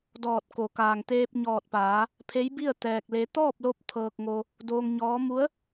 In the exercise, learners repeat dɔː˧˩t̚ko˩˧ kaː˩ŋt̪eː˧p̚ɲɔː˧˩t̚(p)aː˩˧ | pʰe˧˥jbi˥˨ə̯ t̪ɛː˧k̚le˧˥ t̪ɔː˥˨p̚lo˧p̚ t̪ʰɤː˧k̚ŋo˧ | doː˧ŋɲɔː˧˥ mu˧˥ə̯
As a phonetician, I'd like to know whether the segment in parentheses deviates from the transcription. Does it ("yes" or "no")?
no